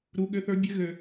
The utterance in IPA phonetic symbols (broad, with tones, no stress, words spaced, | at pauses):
ɾu˧˥ ɠø˧˥θə˞˧˥ bʲɘ˧˥ɣø˧